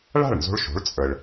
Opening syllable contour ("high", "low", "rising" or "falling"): falling